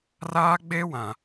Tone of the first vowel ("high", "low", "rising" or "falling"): high